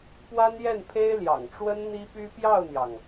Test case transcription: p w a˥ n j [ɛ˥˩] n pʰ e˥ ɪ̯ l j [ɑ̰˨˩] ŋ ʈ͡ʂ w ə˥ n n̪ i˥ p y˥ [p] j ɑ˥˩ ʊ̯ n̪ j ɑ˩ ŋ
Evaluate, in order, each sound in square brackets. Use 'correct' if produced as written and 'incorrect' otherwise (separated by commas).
correct, correct, correct